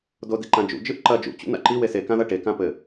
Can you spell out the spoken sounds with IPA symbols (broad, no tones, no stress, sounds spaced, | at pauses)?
d o d i ǃ ã d͡ʒ ṵ d͡ʒ ɨ ʔ ǃ ɐ d͡ʒ ṵ t͡ɕ ṵ n a̰ ǃ i w e s e k ã ð ɐ ʈ e k ã p ɘ